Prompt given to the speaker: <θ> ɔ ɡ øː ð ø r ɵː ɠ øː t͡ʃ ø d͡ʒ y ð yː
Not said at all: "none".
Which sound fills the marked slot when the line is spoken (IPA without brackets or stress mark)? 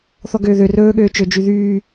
θ